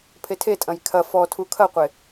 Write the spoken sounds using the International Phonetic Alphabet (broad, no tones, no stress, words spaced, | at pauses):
pʰetʰetʼɐ̃j kʰɐ fɔtʰu kʰɐqʷe